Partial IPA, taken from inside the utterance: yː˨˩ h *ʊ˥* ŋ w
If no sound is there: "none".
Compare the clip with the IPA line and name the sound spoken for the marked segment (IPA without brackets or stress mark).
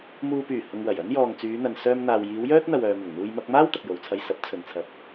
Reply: ʊ˨